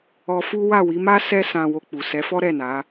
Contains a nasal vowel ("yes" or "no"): yes